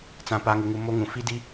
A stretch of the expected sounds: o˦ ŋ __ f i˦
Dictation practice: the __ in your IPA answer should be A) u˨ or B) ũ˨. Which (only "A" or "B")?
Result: B